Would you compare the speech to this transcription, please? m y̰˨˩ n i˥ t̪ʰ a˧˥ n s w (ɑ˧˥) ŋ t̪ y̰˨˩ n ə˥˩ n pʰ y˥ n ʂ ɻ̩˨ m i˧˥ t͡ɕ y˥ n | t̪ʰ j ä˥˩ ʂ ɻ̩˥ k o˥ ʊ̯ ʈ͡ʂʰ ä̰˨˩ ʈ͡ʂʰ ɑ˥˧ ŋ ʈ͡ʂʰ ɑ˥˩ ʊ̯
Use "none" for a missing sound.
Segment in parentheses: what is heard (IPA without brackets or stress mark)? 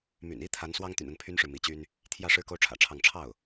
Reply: ɑ˥